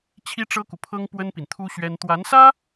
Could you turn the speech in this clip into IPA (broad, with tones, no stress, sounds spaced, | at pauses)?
t͡ɕʰ i˥ ʈ͡ʂ ɤ˥ k u˨ pʰ ɤ˥ ŋ p w ə˥ n p i˨ n t̪ʰ u˥ ɕ ɥ ɛ˥ n t̪ w a˧˥ n s ä˥